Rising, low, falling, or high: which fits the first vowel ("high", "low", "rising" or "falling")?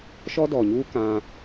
high